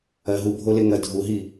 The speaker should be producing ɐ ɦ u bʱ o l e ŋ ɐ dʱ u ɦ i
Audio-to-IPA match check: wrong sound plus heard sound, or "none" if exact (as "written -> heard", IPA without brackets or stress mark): none